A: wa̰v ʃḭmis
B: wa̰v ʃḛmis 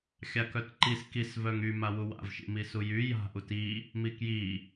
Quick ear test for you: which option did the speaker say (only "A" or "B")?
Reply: A